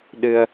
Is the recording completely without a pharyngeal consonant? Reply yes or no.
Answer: yes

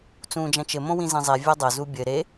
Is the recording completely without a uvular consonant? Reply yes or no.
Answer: yes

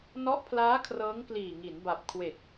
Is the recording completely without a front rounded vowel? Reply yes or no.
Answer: yes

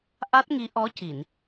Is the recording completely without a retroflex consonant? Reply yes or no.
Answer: yes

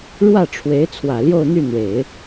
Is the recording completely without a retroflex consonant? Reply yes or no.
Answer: no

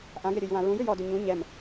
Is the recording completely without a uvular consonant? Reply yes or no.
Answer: yes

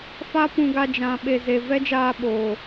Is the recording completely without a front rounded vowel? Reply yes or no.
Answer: yes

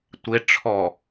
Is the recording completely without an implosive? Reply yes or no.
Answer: yes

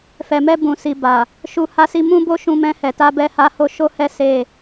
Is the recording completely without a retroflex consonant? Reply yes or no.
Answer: yes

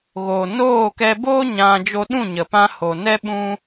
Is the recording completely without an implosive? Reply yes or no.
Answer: no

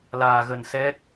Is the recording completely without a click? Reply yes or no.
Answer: yes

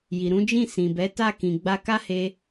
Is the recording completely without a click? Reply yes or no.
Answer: yes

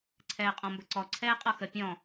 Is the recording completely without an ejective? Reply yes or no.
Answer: no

